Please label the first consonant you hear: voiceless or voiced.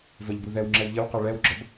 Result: voiced